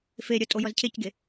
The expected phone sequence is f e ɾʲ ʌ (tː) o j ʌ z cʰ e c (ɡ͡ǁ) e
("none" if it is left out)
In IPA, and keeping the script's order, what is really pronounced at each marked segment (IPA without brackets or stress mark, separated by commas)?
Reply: tʼ, ɡ